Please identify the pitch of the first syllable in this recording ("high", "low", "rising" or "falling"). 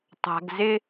low